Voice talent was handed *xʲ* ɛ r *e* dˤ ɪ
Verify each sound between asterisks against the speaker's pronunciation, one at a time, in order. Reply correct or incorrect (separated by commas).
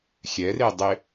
correct, correct